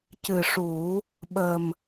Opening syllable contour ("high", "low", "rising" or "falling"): low